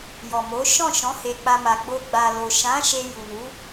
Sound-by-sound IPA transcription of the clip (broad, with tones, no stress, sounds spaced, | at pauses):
j ɔ˨ m o˨˦ ʃ ɔ̃˦˨ ʃ ɔ̃˨˦ h e˧ k͡p a˧ m a˨ ɡ͡b o˧ ɡ͡b a˨ l o˨ ʃ ã˨˦ ʃ e˧ j u˨ n u˨˦